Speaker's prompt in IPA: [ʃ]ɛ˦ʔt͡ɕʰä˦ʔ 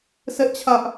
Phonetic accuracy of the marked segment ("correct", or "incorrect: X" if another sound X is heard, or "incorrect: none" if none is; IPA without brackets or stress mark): incorrect: s